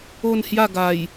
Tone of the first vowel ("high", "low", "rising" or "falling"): falling